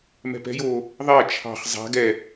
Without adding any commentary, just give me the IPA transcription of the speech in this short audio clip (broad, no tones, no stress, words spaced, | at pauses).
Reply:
mɛ̤pɛ̤joː | ðˤɛ t͡ʃʰɑ̤χ zˤa̤ ɡɛ